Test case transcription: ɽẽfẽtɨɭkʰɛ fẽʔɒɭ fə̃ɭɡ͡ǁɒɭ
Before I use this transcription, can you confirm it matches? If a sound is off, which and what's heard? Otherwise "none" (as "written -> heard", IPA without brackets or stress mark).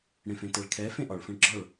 ɨ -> ɛ